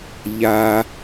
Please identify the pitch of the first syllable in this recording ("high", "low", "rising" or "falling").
high